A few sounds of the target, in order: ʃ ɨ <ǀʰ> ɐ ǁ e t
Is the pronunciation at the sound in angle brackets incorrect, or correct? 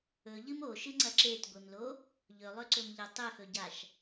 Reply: incorrect